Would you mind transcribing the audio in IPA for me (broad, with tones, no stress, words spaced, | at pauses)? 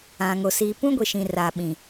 ã˨ŋo˨ siː˨pũ˦ɡʷi˨ʃĩ˨ raː˨ɓĩ˨